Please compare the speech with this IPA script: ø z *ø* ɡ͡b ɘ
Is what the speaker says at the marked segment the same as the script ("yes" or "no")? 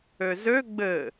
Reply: yes